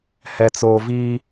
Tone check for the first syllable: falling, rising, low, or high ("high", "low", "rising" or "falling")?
low